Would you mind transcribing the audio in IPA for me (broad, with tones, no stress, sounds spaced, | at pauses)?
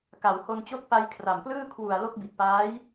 k a˩˦ w h o˧ n t͡ɕ o˦˥ k̚ p a˧ j kʰ r a˨˩ m p l ɯː˥˩ kʰ w u˨˩ a̯ l o˦˥ k̚ b i˨˩ t̚ p aː˦˥ j